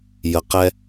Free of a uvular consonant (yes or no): no